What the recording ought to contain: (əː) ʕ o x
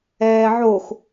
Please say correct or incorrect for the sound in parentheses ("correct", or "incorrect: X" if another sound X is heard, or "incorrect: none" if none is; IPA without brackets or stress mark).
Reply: incorrect: ɛː